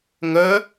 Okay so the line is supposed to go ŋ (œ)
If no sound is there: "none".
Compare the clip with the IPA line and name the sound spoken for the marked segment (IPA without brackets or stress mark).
œ